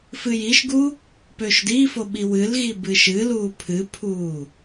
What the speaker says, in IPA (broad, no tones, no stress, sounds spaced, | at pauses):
f ɨ j i ʃ ɡ u | p ø ʃ ʊ d i f o ɓ i w ɨ l ɣ i b ɨ ʃ ɨ l uː pʰ ɨ pʰ uː